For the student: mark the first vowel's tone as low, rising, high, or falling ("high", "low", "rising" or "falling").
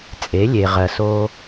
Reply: rising